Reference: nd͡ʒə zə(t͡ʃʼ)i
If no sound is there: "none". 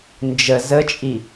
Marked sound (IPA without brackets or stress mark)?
t͡ʃʼ